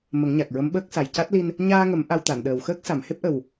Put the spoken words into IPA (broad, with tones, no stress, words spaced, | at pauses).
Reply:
mə˨˩˦ŋɲa˨˩k̚ɹə˧˥mɓəː˦˥k̚ sa˨˩jca˦˥t̚li˧n | ɲaː˧ŋə˨˩˦m ʔa˧wt̪a˨˩˨nɗəː˨˩w xəː˦˥k̚sa˨˩˨mhe˦˥p̚ʔə˨˩w